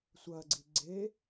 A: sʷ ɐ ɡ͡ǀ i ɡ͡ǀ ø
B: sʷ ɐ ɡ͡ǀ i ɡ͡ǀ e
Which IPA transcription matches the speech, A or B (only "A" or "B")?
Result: B